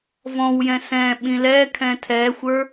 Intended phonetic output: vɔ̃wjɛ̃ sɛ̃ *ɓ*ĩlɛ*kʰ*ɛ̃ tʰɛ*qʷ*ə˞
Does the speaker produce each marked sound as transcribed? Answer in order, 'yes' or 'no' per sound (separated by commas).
yes, yes, no